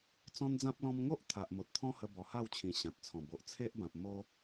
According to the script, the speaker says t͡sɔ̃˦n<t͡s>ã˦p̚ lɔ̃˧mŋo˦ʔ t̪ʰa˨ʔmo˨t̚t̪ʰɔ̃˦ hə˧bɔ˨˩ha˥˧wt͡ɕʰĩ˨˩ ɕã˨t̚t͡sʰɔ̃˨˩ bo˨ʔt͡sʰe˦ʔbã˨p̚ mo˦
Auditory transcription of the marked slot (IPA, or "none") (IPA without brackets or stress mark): d͡z